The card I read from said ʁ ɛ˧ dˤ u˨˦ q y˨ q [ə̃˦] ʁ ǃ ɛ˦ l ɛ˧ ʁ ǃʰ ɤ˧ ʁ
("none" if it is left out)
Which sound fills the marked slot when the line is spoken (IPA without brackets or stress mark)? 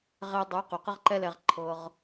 ə˦